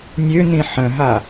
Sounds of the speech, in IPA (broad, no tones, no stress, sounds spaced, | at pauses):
nʲ ø n̪ ĩ ħ ə̃ ɦ a